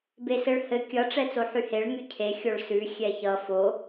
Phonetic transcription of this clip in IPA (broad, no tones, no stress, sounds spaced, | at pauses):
b e s ɘ ɭ h ɘ kʲ ʌ ʈ͡ʂ ɛ t͡s o ħ y h e ɭ ŋ y cʰ e xʲ o ɭ s ʉ xʲ ɛ ç ʌ f o